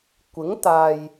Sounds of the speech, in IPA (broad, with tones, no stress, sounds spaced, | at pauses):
kʷ ɪ˨˥ ŋ t̪ aː˨ j